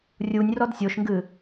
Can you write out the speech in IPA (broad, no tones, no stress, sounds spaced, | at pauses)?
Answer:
rʲ u nʲ r ɔ d sʲ o ʃ ŋ ɡ ɨ